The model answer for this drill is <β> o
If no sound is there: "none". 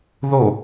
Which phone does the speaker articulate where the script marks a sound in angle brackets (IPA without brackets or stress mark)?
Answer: ð